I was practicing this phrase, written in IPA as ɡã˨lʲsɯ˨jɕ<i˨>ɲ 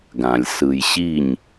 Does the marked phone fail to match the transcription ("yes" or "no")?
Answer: yes